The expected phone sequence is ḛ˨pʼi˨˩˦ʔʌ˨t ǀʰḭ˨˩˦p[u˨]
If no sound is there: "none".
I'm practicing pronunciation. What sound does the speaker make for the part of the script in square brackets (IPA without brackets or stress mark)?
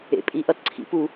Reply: u˨˩˦